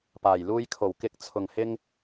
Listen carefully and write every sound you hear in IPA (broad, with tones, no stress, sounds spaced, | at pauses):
p aː˨˩ j l uː˧ j kʰ o˨˩ w k ɪ˨˥ k̚ t͡sʰ ʊ˨˩ ŋ h ɪ˧ ŋ